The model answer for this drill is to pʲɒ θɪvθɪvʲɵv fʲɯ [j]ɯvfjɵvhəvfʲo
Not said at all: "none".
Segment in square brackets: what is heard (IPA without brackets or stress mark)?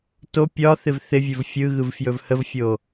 ɣ